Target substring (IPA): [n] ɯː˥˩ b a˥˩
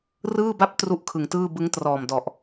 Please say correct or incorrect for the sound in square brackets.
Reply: incorrect